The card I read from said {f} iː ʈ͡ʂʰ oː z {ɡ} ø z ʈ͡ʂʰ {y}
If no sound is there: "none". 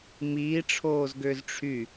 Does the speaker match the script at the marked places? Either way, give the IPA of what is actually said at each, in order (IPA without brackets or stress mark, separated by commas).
m, ɡ, y